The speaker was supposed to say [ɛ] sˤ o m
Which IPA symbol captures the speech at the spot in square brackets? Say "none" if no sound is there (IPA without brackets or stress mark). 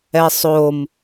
ɛ